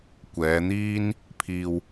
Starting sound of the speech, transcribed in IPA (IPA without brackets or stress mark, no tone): kʷ